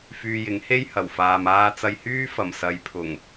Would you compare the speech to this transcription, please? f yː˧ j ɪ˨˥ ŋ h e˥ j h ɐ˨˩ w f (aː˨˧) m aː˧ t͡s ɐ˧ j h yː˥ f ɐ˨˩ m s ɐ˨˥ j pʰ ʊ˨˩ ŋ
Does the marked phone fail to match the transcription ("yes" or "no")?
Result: yes